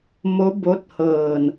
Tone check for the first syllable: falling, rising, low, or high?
rising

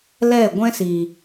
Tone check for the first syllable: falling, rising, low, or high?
falling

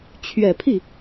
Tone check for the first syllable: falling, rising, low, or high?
low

